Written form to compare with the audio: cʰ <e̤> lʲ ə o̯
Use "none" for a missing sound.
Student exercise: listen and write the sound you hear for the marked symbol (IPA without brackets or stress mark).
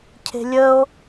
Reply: e̤